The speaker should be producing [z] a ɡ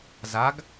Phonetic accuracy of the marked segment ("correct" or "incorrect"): correct